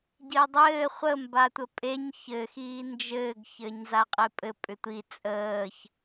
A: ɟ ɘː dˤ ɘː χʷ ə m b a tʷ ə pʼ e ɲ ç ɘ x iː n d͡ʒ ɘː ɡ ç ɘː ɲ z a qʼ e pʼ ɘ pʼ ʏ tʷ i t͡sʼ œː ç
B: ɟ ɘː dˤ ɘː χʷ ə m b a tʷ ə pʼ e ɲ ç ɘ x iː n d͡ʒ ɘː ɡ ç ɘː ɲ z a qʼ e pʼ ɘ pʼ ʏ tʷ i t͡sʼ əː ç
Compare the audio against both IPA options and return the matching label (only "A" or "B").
B